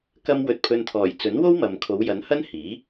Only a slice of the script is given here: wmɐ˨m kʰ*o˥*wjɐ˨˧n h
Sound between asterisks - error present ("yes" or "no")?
yes